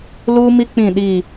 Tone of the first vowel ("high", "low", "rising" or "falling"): high